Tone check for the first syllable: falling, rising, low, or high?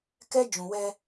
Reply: high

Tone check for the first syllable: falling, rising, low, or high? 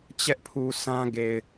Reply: high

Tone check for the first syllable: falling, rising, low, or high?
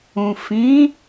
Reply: low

